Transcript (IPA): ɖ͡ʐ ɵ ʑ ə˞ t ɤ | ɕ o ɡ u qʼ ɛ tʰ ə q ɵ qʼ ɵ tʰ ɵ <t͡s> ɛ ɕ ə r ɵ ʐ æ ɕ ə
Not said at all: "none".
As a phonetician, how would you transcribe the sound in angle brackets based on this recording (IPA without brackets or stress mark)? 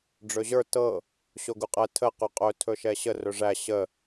ʃ